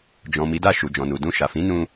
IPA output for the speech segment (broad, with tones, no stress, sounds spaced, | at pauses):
d͡ʒ ɔ̃˨ m i˨˦ d a˦˨ ʃ u˨ d͡ʒ ɔ̃˨ n u˨ d ũ˧ ʃ a˨ f ĩ˨˦ n ũ˧